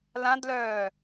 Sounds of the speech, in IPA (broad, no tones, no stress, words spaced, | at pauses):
lãdlœː